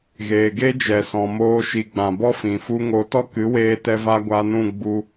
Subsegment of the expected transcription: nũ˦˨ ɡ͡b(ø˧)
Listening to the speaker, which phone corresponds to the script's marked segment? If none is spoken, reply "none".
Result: u˧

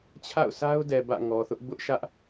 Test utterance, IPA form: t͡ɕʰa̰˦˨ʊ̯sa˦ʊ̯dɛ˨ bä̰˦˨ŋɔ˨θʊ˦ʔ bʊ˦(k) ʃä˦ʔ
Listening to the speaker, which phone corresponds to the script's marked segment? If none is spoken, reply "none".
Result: ʔ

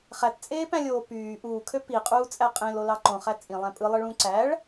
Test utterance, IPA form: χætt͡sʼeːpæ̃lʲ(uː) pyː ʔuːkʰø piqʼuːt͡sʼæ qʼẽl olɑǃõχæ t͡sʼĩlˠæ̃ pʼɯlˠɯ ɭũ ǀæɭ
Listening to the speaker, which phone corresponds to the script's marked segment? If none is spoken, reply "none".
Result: oː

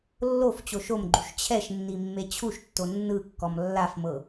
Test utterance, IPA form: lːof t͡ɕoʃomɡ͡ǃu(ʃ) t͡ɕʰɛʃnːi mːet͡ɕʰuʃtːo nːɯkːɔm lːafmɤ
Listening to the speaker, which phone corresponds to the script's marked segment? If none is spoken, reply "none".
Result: ʃ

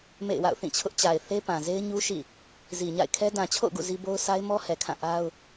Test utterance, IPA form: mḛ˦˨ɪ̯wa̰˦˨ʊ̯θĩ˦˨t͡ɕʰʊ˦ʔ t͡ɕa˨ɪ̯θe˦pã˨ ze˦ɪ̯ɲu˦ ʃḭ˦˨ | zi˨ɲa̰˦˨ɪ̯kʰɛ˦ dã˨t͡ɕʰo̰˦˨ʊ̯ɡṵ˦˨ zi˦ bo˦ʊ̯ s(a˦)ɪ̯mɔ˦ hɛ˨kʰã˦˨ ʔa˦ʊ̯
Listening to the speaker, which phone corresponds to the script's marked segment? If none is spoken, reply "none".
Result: a˦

